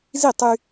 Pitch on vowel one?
falling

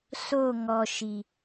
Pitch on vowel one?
falling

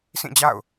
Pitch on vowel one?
falling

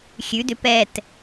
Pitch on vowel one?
rising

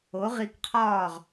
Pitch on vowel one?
rising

